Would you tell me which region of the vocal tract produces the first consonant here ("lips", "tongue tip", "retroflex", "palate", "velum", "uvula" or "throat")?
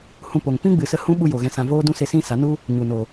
throat